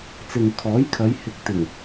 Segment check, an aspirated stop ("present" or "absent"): present